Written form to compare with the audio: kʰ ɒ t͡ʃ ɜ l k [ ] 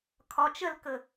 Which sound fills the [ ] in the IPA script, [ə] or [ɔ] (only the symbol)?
ə